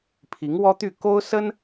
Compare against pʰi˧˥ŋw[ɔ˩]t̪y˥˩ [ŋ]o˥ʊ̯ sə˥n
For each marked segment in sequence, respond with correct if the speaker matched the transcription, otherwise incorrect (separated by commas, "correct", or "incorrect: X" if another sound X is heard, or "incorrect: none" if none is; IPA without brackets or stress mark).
incorrect: ɔ˥, incorrect: k